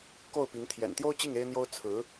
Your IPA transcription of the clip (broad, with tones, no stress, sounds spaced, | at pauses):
k o˥˩ ʊ̯ p i˧˥ ŋ t̪ʰ j ɛ̰˨˩ n t̪ j o˥ ʊ̯ t͡ɕ i˥˩ ŋ e˥ ɪ̯ n̪ j o˥ ʊ̯ t͡sʰ ɹ̩˧˥